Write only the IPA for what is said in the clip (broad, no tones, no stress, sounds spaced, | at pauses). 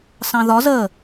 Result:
s ɑ̃ ð ɒ z ə